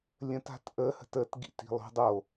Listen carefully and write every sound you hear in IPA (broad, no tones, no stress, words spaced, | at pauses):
lʲə̃ta̤t ʔəhə̤t ətɡḭt i̤lˠo̤ dˤo